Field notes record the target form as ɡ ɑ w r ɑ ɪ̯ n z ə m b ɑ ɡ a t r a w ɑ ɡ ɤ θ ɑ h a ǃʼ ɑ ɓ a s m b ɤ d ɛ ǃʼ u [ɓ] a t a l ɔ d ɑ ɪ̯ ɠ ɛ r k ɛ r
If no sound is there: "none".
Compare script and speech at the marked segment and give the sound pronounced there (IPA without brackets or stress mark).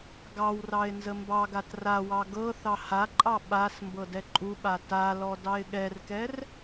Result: ɓ